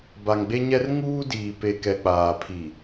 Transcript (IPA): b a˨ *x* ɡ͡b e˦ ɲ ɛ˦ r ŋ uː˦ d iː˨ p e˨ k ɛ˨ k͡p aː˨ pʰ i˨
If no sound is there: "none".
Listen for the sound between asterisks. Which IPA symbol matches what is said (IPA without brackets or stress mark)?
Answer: ŋ